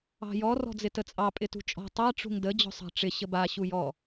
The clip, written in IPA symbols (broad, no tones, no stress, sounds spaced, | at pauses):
ɑ̤ j ɔ r ɔ̤ d͡z ɪ t ə t͡sʼ ɑ pʼ ɪ t ṳ t͡ʃʼ ɔ̤ tˤ a ʈ͡ʂ ṳ ŋ d ə d͡ʑ ɔ̤ sˤ ɑ̤ ʈ͡ʂ ɪ ɕ ə b a ɕ u j ɔ